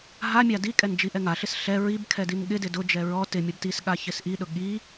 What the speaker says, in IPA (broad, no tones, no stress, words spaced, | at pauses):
ɦamʲa dikʼɛn d͡ʒiʔɛŋaɬɪs ɬɛ ɹibkʰɛ dinɠɪdɪ dʊd͡ʒɛ ɹɔ tɪmʲɔb tis ɠaçɪsʔiɗʊ ɠi